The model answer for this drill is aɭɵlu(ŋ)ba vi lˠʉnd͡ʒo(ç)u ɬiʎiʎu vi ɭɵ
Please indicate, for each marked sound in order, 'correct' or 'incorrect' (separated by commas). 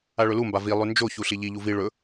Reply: incorrect, correct